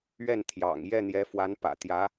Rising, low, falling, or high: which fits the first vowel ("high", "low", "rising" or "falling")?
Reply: falling